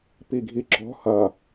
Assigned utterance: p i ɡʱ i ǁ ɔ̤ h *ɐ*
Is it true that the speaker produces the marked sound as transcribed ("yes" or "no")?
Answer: yes